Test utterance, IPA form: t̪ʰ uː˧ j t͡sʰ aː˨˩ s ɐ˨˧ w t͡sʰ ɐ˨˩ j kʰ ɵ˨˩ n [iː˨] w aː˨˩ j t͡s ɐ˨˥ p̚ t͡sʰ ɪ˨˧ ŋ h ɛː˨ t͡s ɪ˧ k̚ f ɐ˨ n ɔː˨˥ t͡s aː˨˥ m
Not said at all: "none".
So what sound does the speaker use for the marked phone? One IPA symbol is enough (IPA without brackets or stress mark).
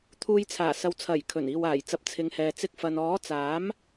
iː˨